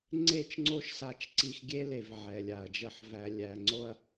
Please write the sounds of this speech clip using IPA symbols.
ŋ͡ǀ e˦˨ t͡ʃ ŋ͡ǀ o˦ ʃ s a˦ t͡ʃ ǀ i˦ x ɡʲ e˦ l e˨ v ʕ ɛ˨ lʲ a˨ ɐ̯ d͡ʒ ə˦˨ ħ v æ˨ lʲ æ˨ ŋ͡ǀ o˦ ɐ̯

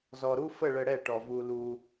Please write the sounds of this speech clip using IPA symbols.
z ɔ˨ ɾ u˦ f ə˦˨ ɭ ə˧ ɽ ɛ˦˨ ʈ ɔ˨ v u˧ l u˧

